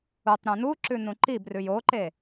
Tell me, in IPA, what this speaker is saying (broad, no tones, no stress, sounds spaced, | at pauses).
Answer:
u tˤ ɾ ũ n u ǁ ʉ n ũ ǃ i b r ʉ j o ǃ e